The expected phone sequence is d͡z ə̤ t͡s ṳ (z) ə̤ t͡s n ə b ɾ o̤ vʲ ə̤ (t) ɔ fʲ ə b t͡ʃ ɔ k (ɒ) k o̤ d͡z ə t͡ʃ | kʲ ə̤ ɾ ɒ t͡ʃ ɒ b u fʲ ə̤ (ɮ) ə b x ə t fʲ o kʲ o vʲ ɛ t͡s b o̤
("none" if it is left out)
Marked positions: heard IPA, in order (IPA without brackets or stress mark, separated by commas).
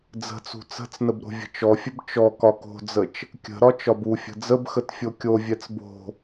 t͡s, t͡ʃ, ɒ, d͡z